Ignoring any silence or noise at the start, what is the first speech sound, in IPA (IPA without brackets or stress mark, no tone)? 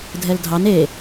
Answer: dʱ